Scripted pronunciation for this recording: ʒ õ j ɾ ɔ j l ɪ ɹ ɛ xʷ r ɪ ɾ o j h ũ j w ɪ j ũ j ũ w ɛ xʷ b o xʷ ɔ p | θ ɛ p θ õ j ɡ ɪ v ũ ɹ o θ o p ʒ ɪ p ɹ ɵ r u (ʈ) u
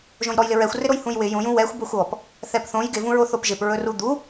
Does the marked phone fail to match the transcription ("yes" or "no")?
yes